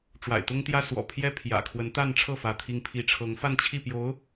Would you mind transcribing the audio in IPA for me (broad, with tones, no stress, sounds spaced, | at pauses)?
ʈ͡ʂ w a̰˨˩ ɪ̯ t̪ ʊ˥ ŋ t̪ j ä˥ s w ɔ̰˨˩ pʰ j ɛ˥ pʰ j ä̰˨˩ kʰ w ə˧˥ n t̪ a˥˧ n ʈ͡ʂʰ ɤ˥˩ f ä˧˥ t̪ʰ i˥ ŋ pʰ i˥˩ ʈ͡ʂʰ ɤ˧˥ ŋ f a˥˧ n t͡ɕʰ i˥˩ p j o˧˥ ʊ̯